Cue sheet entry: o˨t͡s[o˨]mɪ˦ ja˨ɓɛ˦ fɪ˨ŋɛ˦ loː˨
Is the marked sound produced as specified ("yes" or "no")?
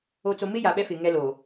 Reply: yes